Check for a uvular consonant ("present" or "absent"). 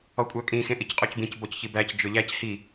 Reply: present